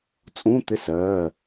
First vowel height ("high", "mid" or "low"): high